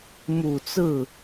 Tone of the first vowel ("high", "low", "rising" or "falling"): low